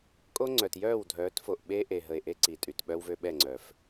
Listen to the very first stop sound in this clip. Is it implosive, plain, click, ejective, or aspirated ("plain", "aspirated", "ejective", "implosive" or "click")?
ejective